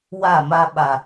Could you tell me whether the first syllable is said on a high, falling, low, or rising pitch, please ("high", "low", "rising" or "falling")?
falling